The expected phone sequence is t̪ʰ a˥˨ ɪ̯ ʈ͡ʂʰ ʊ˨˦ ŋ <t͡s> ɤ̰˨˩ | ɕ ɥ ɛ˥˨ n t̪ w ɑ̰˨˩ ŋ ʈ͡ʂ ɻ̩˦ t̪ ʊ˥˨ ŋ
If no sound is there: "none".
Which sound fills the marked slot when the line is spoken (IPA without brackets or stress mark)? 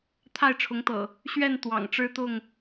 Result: t̪